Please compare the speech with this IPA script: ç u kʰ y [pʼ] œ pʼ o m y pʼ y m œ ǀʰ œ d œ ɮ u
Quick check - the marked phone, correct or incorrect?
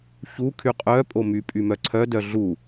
incorrect